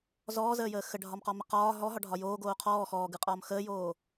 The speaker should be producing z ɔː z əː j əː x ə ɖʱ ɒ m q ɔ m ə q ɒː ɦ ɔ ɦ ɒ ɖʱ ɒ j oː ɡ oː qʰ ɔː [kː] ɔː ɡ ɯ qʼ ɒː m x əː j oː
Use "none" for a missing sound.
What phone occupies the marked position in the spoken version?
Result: x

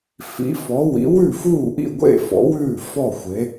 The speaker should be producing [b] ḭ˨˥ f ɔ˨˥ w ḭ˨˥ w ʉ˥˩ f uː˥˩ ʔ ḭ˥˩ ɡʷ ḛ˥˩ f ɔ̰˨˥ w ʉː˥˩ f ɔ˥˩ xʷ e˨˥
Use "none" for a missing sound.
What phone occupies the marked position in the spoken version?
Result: f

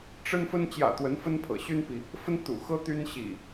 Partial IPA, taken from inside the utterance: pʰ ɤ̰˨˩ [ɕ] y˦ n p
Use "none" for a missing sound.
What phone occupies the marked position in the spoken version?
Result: ɕ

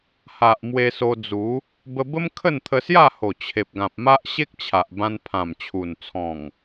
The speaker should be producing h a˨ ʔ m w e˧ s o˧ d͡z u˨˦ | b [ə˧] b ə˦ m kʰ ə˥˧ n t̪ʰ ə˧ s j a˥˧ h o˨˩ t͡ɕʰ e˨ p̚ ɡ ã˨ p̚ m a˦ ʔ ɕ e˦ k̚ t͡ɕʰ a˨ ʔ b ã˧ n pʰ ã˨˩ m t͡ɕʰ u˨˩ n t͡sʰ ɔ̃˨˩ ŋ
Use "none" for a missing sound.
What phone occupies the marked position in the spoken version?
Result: ə˧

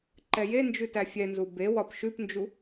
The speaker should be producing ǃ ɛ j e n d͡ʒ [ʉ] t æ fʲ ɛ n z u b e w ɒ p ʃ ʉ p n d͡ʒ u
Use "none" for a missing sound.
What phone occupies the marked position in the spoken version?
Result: ʉ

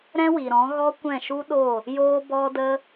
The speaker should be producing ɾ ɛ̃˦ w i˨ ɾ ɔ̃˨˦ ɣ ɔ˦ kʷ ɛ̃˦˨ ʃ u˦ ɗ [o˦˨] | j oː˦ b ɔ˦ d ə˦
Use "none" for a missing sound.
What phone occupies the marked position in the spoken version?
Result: o˦˨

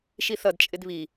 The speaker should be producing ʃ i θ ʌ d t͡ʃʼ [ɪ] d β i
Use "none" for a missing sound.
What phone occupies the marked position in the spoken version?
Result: ɪ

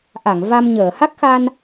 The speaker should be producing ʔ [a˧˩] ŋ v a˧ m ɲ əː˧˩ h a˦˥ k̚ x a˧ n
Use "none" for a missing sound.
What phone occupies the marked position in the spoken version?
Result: a˧˩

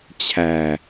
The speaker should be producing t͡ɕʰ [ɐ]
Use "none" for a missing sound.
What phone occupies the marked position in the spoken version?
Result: æ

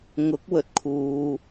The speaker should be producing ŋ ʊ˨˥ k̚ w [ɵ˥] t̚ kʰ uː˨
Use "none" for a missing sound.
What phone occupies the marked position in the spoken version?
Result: ɵ˨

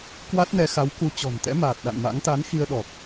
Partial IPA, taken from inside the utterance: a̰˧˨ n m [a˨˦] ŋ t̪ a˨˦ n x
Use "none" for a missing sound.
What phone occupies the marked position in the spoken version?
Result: a̰˧˥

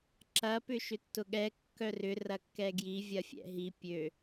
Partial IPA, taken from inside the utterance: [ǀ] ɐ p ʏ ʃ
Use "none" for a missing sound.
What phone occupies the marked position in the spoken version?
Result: ǁ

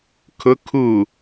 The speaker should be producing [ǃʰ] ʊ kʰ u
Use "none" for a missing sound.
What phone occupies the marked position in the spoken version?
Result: kʰ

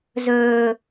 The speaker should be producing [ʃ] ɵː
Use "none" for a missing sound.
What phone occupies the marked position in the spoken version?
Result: z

